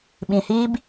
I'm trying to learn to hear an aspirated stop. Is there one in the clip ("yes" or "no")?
no